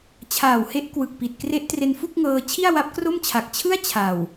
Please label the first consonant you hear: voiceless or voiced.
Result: voiceless